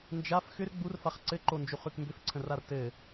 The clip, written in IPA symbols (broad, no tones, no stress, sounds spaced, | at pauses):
n d͡ʒ a f x ʏ r ɡ͡b u r f a χ ǀ ɘ ǃ o n d͡ʒ u χ ʉ k m b ʏ f ǀʰ ə̃ r a r t ɘ